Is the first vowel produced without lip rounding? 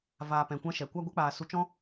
yes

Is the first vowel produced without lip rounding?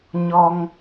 no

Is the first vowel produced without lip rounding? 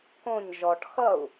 no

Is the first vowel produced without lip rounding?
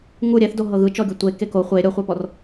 no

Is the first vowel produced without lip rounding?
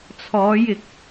no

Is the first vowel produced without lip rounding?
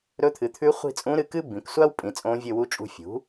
no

